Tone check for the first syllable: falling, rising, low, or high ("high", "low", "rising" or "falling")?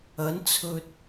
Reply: rising